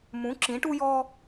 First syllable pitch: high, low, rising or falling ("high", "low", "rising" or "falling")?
rising